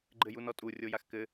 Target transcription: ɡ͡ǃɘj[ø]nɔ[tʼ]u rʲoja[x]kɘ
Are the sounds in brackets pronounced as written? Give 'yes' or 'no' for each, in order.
no, yes, yes

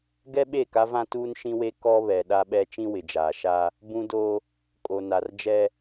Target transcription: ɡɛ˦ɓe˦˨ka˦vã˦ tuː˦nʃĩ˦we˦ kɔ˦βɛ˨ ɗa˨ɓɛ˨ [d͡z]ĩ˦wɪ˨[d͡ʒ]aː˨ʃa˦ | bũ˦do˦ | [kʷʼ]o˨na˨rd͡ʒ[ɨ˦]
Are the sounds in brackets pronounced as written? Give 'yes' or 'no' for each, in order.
no, yes, no, no

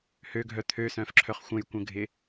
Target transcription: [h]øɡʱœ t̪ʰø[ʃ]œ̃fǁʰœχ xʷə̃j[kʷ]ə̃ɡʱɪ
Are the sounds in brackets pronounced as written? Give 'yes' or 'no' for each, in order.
yes, no, yes

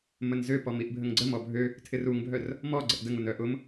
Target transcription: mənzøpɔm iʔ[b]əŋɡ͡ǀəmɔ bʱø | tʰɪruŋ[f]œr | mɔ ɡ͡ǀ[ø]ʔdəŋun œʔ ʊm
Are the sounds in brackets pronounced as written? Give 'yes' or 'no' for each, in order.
no, no, no

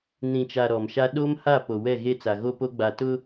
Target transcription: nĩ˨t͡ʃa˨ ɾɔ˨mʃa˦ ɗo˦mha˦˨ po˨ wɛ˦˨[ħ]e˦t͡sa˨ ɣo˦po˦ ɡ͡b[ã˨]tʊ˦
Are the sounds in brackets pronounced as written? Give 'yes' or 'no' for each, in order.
no, no

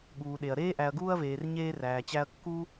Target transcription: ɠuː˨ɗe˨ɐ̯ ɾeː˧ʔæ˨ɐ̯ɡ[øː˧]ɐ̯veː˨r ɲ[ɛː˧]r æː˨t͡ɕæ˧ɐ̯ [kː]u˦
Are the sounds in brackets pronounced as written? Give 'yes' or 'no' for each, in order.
no, no, yes

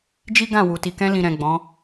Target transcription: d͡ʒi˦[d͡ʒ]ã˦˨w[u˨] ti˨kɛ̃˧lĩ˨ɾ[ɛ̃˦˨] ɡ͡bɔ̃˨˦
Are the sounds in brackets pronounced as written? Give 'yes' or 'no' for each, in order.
no, yes, no

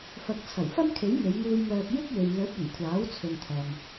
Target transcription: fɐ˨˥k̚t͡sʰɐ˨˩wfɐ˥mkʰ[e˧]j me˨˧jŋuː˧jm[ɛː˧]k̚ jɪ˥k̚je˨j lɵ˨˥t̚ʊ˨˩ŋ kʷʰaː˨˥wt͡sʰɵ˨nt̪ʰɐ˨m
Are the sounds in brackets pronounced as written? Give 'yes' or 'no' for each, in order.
no, no

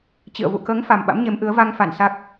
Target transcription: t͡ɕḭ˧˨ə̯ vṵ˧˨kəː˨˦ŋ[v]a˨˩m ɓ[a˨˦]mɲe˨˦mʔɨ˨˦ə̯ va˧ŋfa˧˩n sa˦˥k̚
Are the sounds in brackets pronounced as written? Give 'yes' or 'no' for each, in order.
no, no

